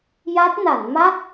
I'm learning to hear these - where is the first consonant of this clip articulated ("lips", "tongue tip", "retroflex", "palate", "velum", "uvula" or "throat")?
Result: palate